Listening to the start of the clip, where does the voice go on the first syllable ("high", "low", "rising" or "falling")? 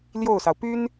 falling